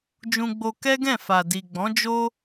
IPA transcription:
d͡ʒ ũ˧ ɡ͡b o˧ k ɛ˦ ɡ ɛ̃˦˨ f a˨ d i˨ ɡ͡b ɔ̃˨˦ d͡ʒ o˦

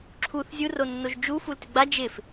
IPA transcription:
ǁʰ u θ zʲ u r o nː o ʒ d͡ʒ u f u l t ɪ ɡ͡b a d͡ʒ ɪ f

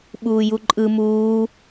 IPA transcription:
ɓ uː j u ǃʼ ɯ m uː

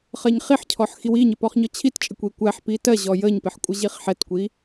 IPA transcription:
χ ɜ ɲ χ i ħ cʰ ɔ ħ x i w i ɲ ɪ p ɔ χ ɲ ɔ t͡ɕʰ i t t͡ʃʼ ɪ kʷ i kʷ æ ħ p i t ɜ ʑ ɔ j ə ɲ p ɪ ħ kʷʼ ə ʑ i χ ħ ɛ t kʷ i

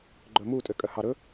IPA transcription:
ɡ͡ǃ ɵ m u tʼ ø kʼ œ h ɑ ɾ ɵ

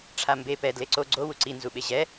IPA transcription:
ʈ͡ʂʰ a m b e p ɛ d l e ǀ o ɡ͡ǀ o w u ǀ i n z u ɓ e ʑ ɛ

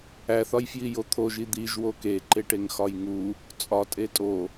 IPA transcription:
æ θ ɒ j f j i j o t̪ʰ o ʒ i d̪ i ʒ w o k e ǃ e ʈ e ŋ x ɒ j ŋ u | t͡sʼ ɒ tʼ e tʼ o

